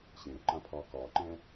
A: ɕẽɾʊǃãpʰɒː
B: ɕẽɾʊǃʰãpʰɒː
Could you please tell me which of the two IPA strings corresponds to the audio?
A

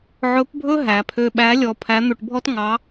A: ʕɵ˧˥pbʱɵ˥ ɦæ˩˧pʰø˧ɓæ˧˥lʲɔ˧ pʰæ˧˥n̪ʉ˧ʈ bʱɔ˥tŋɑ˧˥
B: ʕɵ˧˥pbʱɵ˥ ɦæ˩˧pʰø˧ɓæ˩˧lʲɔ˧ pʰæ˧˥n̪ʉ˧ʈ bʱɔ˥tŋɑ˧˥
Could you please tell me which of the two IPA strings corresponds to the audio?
A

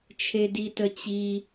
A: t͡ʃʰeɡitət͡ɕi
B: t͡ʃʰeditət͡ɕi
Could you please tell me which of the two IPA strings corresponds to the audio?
B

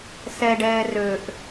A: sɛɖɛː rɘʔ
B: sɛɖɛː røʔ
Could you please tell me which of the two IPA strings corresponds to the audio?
B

